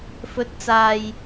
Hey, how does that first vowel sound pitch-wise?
rising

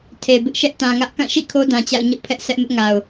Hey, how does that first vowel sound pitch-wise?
low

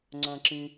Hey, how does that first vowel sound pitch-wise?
high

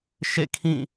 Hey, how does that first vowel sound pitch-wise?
falling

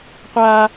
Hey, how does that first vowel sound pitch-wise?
high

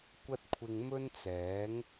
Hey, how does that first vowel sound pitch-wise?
high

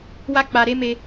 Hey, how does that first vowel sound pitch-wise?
high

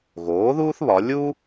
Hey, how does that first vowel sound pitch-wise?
rising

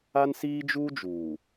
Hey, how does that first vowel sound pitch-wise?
high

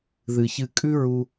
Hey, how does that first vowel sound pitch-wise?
low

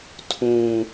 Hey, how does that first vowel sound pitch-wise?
low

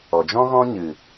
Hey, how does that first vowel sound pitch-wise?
low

